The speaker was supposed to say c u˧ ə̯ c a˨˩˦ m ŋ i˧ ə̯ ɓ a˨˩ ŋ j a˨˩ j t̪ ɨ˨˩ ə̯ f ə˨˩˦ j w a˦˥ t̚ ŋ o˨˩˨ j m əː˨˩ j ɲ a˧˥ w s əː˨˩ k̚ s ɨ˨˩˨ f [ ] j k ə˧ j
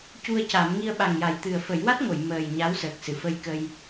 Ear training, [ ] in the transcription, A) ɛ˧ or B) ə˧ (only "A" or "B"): B